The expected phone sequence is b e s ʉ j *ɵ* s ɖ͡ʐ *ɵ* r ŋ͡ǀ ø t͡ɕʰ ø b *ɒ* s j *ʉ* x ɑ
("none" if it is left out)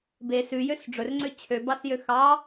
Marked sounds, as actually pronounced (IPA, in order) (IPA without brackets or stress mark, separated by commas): ø, ɵ, ɑ, ø